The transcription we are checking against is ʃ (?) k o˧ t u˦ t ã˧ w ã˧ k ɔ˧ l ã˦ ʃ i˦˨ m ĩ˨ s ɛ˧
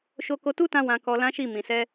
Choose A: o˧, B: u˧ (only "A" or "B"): A